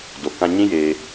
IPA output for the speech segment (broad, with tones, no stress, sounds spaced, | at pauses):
d o˨ k ã˧ ɲ ĩ˦ j eː˧